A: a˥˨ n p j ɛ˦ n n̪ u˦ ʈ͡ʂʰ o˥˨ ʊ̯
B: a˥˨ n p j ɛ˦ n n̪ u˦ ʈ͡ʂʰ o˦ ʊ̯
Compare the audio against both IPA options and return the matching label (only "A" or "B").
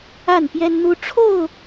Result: A